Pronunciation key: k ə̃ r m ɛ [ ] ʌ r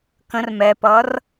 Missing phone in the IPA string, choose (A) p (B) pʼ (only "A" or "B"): A